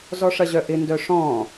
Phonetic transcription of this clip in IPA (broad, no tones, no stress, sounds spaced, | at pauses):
z ɔ ʂ ɐ ʑ œ ʔ ɪ n d œ ʂ ɔ̃